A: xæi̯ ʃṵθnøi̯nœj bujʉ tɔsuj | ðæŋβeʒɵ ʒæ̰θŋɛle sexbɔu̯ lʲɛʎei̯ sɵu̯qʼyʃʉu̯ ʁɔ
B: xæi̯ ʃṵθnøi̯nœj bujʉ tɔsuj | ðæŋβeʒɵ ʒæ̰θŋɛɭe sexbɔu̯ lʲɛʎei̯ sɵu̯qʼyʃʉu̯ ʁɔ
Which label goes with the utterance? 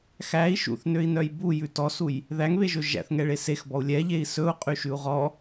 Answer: B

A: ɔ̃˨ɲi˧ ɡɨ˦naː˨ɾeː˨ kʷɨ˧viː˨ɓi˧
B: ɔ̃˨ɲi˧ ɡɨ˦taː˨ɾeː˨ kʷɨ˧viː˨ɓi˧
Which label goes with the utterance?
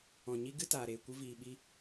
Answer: B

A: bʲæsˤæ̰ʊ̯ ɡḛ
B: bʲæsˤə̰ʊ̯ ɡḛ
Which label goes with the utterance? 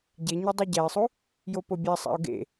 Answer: A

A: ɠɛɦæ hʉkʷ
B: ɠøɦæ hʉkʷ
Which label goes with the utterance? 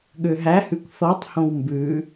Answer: B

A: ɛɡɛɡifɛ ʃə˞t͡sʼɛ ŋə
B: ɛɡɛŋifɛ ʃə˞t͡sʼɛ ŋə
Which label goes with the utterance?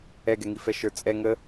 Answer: B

